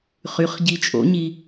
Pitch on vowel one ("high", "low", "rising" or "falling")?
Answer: rising